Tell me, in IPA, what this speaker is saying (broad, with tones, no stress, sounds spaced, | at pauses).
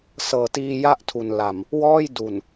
s ɤː˨˩ t iː˧ j a˥˩ ʔ tʰ u˨˩ n l a˨˩ m | w ɔː˥˩ j d u˨˩ n